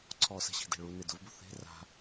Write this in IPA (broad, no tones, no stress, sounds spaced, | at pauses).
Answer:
ǀʰ ɔ s ɛ̤ ɕ i̤ d ɛ̤ ɭ u n ɪ d ʊ v b ʊ θ e̤ r a̤